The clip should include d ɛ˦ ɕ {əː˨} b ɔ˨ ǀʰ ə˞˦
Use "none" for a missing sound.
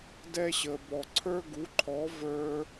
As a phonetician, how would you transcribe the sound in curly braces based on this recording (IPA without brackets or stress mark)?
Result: ə˨